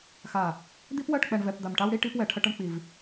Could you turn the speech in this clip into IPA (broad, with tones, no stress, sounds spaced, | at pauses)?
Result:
x a˨ | d̪ i˦ p w ɜ˦˨ ʈ k͡p ɛ˨ ɳ v ɛ˨ p d̪ a˨ m ʈ a˦ w ɽ i˦ ʈ i˦ p w ɛ˨ ʈʰ ə˦ ʈ ə˦ ɳ k͡p i˨ v